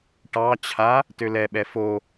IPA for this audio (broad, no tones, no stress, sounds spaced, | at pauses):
ʈ ɑ t͡ɕʰ a | t ø l ɛ ɓ ɛ f o